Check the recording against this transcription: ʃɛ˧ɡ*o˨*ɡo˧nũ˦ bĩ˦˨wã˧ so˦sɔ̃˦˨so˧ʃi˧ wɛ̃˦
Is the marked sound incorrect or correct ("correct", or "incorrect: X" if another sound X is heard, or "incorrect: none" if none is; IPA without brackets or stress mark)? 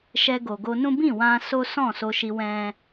correct